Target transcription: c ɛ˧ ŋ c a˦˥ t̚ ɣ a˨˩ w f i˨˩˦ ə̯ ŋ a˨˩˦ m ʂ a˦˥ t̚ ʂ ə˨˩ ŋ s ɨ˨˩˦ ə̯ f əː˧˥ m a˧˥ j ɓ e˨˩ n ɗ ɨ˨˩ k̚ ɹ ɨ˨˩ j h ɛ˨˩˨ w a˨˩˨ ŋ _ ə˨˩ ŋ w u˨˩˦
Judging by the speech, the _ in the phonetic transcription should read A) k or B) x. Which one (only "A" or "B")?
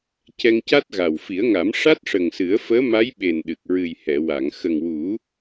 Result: B